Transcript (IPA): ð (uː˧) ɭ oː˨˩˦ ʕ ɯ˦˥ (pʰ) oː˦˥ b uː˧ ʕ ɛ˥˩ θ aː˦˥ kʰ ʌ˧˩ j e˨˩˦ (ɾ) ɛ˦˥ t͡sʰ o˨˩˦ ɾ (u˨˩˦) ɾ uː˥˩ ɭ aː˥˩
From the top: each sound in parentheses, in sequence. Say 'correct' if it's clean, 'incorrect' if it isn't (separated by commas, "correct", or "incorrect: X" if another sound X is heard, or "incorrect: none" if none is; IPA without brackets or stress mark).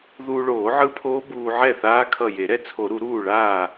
correct, correct, correct, correct